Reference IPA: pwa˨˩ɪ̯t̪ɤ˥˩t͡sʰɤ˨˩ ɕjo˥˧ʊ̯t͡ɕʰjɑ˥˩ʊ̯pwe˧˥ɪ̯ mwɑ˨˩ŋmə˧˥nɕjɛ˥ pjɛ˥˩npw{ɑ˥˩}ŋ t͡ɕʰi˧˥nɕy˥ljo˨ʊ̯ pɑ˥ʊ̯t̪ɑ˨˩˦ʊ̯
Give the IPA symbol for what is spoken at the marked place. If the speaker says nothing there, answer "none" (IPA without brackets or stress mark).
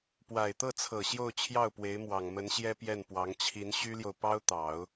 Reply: ɑ˧˥